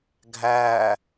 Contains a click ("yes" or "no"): no